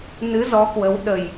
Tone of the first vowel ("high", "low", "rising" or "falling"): rising